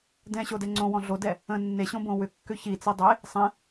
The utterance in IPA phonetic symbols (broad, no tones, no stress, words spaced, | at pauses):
dɛ̃ɕodɛ ŋ͡ǀõwɔ̃ ɮodɛ | ə̃ nːeɕõbõ wʏkːʏ çit͡si dˤe | sˤɛ̃